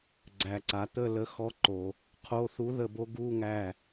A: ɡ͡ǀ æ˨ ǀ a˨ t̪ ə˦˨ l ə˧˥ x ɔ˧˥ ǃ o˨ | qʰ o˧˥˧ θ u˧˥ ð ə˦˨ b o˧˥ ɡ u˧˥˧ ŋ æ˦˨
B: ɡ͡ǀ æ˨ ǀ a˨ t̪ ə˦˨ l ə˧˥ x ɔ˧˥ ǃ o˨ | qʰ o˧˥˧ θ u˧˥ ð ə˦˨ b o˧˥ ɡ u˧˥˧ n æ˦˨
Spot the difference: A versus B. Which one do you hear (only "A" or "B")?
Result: A